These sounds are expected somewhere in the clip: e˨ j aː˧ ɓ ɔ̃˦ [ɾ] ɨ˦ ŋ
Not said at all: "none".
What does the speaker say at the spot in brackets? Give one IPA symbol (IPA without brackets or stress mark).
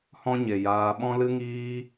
l